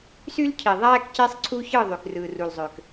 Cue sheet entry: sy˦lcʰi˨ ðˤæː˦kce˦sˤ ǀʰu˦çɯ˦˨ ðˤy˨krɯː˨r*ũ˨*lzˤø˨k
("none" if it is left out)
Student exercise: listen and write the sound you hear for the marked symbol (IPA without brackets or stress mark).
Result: u˨